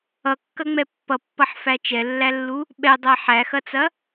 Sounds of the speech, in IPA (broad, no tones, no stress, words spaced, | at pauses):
ʌkːɐŋ͡mɛ pːʌpːʌħfæ t͡ʃɛlːælːu | ɓɛdˤæ ħæxɐt͡sɐ